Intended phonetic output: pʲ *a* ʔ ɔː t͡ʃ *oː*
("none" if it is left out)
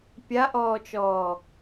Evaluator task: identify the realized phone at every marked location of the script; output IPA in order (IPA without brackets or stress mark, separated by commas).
a, ɔː